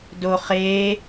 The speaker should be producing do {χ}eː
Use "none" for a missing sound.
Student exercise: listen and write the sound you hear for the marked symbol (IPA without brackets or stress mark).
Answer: χ